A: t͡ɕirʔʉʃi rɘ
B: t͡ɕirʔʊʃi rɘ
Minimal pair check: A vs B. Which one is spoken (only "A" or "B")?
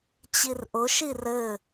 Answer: B